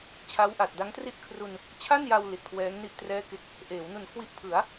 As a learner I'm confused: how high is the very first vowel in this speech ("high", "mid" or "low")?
low